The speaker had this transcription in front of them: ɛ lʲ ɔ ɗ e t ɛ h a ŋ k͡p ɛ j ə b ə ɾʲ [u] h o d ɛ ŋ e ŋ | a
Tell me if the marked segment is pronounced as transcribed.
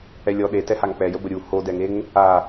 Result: yes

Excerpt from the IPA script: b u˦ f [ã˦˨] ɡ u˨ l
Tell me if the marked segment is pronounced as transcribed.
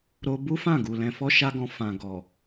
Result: yes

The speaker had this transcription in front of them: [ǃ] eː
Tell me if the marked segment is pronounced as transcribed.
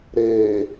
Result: no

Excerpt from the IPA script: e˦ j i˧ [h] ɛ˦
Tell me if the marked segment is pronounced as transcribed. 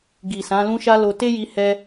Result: yes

